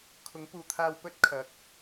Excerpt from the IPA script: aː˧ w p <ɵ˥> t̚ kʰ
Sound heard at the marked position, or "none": ɵ˥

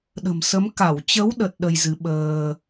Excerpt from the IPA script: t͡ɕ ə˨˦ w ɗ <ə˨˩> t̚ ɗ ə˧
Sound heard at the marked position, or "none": ə˨˩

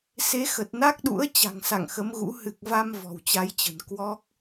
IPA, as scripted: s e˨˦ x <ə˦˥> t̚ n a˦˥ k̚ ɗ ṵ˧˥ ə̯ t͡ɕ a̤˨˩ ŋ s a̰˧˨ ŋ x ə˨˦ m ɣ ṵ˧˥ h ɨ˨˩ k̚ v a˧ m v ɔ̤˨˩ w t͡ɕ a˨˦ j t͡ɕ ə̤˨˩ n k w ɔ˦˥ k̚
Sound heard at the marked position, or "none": ə˨˩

